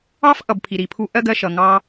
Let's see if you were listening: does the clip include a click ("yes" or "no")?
no